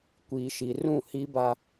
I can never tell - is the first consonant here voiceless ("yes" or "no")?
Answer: yes